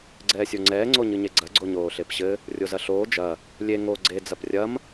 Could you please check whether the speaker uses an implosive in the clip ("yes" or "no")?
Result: no